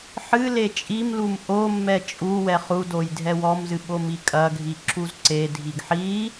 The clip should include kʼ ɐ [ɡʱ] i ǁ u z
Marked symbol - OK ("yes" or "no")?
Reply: yes